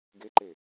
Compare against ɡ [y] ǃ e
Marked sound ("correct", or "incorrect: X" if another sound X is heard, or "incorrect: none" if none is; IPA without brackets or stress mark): incorrect: e